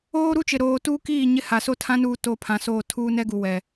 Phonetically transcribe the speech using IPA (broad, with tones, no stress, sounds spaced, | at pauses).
oː˦ ɾ u˦ t͡ʃ ɪ˨ ɾ oː˨ t uː˦ k iː˦˨ ɲ ɪ˦ h a˨ s o˦ tʰ ã˦ n uː˦ t oː˦ pʰ ã˨ s oː˦˨ tʰ uː˦ n ɛ˦ ɡ u˨ w ɛ˨